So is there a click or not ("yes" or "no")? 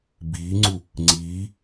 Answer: yes